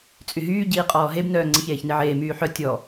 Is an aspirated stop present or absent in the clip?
absent